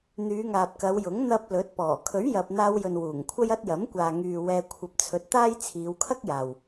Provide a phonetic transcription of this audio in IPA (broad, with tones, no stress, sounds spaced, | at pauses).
n̪ yː˨˧ ŋ aː˨ p̚ k ɐ˨˧ w j ʊ˨˥ ŋ n̪ ɐ˧ p̚ l ɵ˨˥ t̚ p ɔː˨˩ kʰ ɵ˨˥ ɥ j ɐ˨ p̚ n̪ aː˧ w j ɵ˨ n w uː˨˩ ŋ kʷʰ ɐ˥ j ɐ˥ t̚ j ɐ˨˥ m kʷ aː˨ ŋ yː˨ w ɛː˧ kʷʰ ɐ˧ p̚ t͡sʰ ɵ˧ t̚ t̪ aː˥ j t͡sʰ iː˨˧ w kʰ ɐ˥ k̚ j aː˨ w